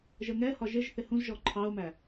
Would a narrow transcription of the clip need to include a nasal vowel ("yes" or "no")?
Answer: yes